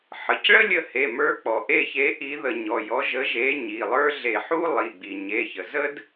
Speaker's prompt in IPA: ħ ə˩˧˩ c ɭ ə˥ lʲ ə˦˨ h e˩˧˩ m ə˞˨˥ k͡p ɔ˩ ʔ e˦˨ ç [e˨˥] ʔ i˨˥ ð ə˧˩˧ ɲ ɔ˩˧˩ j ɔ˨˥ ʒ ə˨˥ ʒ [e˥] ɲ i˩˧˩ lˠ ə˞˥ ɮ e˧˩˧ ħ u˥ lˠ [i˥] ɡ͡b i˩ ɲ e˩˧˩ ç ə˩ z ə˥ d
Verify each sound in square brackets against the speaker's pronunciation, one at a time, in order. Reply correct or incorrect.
correct, incorrect: e˨˥, incorrect: i˩˧˩

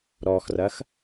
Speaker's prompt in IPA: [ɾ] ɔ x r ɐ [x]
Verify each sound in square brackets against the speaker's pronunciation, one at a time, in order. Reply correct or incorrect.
correct, correct

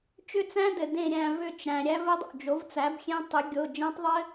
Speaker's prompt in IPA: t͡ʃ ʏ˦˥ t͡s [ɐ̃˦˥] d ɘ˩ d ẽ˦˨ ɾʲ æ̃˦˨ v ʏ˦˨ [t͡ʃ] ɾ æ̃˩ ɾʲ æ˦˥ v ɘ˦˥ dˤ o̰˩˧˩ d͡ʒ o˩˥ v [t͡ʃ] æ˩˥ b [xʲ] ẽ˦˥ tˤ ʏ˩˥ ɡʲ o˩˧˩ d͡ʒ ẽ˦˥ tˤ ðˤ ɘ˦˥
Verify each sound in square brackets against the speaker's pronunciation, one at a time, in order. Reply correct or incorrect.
incorrect: æ̃˦˥, correct, incorrect: t͡s, correct

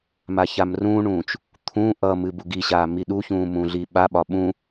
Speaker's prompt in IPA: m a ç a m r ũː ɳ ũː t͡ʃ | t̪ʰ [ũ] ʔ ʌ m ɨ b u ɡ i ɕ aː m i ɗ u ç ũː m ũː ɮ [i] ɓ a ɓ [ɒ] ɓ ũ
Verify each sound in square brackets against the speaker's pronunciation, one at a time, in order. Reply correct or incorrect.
correct, correct, correct

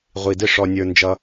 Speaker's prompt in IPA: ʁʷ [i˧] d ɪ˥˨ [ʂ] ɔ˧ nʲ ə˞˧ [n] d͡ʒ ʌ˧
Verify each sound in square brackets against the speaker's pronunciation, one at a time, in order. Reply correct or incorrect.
correct, correct, correct

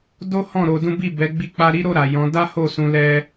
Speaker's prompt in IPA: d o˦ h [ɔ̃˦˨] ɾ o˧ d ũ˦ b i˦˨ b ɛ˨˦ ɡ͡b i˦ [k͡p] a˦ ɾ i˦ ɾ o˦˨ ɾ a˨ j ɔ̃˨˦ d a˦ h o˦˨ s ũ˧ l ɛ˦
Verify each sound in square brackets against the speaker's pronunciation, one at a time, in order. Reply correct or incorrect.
correct, correct

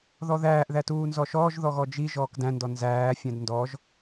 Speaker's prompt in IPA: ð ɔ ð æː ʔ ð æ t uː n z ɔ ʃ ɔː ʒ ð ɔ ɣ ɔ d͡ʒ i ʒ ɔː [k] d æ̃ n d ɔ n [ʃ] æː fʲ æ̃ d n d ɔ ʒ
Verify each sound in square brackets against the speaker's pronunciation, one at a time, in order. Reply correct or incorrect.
correct, incorrect: z

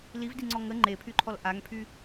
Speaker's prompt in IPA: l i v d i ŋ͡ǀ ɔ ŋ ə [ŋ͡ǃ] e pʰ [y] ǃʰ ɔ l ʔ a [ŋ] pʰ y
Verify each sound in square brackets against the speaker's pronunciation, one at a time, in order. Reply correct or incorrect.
correct, correct, correct

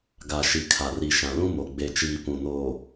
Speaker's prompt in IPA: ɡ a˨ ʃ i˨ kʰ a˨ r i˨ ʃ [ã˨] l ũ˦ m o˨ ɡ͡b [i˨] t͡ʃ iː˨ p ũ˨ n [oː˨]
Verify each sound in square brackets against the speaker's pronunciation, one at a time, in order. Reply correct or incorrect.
correct, incorrect: e˨, correct

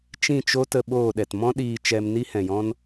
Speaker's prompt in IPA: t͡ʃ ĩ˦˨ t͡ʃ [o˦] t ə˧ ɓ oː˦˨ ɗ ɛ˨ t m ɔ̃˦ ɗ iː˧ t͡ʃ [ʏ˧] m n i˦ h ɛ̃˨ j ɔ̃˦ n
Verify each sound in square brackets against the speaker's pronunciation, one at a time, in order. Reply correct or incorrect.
correct, incorrect: ɛ˧

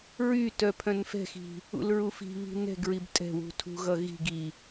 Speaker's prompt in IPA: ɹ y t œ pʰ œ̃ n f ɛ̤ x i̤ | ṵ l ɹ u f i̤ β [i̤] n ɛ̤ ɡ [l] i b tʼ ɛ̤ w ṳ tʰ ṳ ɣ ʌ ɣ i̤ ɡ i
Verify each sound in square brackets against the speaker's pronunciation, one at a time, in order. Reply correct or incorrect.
correct, incorrect: ɹ

